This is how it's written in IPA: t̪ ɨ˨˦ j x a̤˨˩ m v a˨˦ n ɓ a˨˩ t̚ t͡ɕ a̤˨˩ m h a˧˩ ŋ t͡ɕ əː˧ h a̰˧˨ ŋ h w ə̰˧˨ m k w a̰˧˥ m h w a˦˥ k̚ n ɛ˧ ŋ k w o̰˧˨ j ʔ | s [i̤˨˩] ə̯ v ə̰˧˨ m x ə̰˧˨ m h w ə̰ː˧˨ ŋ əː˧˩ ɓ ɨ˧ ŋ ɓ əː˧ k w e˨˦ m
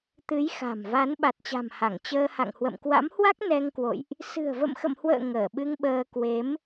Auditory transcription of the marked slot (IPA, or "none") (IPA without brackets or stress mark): ɨ̤˨˩